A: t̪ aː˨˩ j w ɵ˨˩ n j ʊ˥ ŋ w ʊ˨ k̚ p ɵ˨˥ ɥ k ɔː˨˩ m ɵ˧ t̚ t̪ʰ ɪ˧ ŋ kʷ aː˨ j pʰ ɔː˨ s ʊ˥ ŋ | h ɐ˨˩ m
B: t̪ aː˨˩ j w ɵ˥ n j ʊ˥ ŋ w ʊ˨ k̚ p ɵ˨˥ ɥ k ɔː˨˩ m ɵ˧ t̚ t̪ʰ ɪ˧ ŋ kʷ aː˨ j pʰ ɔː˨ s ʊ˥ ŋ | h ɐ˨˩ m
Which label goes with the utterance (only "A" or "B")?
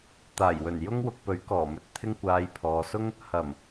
A